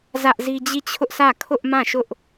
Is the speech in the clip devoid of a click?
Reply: yes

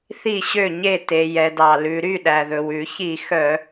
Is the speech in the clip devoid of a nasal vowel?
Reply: yes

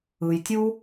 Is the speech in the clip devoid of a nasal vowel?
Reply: yes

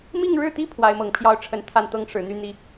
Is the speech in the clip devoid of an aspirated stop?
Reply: no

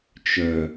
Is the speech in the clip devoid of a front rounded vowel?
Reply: no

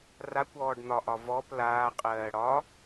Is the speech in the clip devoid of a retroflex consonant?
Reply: no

